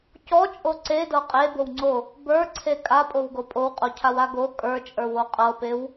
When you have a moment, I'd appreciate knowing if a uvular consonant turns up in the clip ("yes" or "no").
yes